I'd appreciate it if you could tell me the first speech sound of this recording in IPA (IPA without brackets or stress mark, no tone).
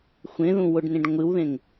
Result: xʷ